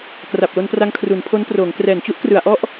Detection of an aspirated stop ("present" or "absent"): present